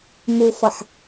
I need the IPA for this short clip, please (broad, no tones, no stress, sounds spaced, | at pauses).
m u f ʌ ħ